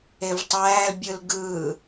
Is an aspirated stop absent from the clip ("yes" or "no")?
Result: yes